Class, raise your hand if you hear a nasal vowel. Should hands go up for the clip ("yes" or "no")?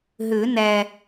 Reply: no